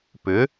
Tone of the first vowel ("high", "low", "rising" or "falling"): rising